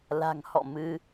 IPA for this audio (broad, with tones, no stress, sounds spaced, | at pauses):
l a̤˨˩ ŋ h ɔ̰˧˨ m ɨ˧